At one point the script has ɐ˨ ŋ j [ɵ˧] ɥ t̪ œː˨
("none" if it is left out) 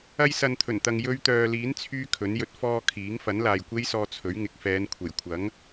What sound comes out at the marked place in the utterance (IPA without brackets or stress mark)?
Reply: ɵ˧